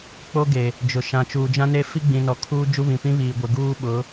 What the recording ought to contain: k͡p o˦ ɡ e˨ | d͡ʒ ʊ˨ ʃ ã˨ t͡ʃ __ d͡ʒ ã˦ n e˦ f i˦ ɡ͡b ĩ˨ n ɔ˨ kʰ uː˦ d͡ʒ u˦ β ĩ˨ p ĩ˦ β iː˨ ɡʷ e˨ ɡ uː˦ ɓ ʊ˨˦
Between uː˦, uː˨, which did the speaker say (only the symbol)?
uː˨